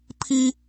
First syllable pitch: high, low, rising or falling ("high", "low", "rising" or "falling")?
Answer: high